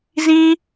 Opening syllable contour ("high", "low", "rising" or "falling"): high